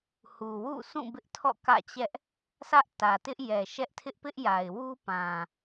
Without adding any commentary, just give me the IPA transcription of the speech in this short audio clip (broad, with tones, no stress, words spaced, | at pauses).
hu˨wṵ˦˨sʰũ˦˨ bɪ˦ʔtʰɔ̰˦˨kä̰˦˨t͡ɕɛ˦ʔ | sä˦ʔtä˨tɪ˦ʔ jɛ˨ʃɛ˦ʔtʰɪ˦ʔ pɪ˦ʔja˨ɪ̯wu˦pã˨